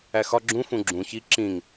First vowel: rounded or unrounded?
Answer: unrounded